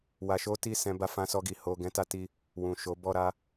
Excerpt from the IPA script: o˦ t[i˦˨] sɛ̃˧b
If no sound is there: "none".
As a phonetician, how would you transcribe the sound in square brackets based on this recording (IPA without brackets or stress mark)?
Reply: i˦˨